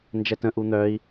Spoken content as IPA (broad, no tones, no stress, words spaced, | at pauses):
nd͡ʒɛtə̃ ʔun̪œi̯